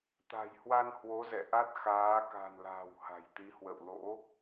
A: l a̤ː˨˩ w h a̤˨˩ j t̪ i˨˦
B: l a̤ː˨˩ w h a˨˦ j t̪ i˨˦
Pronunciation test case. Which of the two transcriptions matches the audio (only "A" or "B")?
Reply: A